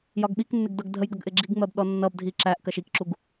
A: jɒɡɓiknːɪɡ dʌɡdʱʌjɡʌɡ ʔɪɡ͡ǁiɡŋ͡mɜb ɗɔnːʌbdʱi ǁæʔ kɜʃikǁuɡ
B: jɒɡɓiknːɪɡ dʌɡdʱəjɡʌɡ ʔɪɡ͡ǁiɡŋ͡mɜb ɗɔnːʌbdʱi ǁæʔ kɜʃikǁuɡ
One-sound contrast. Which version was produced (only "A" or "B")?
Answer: B